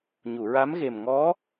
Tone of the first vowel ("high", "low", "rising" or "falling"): low